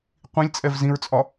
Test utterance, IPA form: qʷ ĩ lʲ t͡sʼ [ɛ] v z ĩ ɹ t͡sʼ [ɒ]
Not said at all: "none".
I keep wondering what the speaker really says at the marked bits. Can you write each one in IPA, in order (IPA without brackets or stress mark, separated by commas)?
ɛ, ɒ